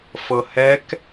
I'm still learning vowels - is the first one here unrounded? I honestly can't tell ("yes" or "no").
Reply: yes